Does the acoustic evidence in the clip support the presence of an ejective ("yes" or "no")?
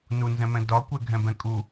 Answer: yes